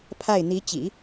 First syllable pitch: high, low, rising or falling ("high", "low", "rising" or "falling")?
falling